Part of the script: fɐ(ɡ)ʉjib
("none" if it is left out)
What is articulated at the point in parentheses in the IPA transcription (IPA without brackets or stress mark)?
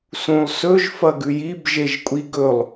ɡ